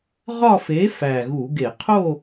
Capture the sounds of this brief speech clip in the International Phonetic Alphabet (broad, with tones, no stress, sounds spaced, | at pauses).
ʁ ɒ˥˧ f e˨˥ f æ˨˩ ɣ u˧˩˧ ɡ e˧˩˧ qʰ o˥˧